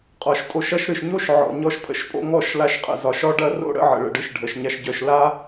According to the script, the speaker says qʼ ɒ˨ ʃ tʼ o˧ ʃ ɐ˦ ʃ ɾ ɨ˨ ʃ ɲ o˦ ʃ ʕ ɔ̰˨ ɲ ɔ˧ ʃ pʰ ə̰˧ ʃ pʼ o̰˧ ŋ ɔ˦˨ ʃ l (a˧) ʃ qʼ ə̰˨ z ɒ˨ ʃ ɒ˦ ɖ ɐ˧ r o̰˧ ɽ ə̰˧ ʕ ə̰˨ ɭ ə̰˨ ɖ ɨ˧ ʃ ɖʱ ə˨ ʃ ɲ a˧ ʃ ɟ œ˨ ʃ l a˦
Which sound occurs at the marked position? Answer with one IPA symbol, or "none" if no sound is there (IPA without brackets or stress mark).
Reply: a˧